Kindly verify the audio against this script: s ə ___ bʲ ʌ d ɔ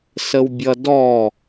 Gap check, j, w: w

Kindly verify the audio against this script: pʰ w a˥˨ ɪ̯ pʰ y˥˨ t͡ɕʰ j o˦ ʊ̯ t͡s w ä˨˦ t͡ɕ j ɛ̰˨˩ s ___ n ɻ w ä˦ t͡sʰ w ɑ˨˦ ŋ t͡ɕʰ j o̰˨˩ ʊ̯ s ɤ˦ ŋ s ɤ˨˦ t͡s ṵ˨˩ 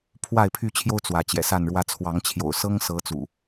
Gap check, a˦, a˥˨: a˥˨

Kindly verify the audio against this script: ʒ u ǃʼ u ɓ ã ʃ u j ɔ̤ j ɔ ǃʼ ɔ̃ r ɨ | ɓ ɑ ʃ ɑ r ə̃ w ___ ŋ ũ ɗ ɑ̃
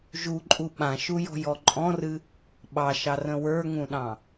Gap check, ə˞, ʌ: ə˞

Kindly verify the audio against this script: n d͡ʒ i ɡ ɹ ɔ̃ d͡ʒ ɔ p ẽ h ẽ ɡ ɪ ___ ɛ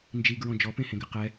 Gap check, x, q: q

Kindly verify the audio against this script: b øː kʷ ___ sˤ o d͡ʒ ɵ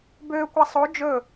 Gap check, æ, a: a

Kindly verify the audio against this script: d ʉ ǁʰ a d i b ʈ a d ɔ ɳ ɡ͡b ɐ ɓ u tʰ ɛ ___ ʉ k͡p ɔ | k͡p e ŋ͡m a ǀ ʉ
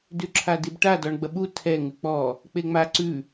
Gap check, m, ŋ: ŋ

